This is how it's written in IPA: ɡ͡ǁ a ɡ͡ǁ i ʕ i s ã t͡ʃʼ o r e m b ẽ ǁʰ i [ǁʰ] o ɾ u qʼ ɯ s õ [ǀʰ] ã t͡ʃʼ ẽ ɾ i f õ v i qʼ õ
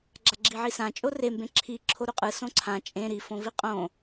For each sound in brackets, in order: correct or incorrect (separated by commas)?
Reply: correct, correct